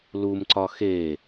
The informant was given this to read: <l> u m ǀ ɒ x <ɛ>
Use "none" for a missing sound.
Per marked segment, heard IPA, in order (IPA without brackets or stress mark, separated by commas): l, e